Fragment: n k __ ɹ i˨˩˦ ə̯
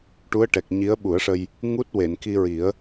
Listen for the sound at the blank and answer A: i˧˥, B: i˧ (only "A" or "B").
B